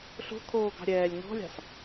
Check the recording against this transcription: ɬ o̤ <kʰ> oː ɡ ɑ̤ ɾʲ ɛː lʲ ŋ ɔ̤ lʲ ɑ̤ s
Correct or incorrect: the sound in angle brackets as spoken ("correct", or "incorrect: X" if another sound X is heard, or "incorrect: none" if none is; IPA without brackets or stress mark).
correct